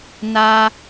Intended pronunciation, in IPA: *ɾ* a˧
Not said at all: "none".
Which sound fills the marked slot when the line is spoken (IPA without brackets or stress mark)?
n